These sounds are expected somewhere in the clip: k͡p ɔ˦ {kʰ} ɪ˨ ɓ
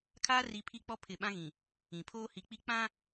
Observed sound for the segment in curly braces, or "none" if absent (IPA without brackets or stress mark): pʰ